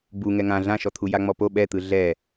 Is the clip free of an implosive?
no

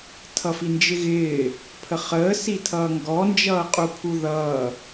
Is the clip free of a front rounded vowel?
yes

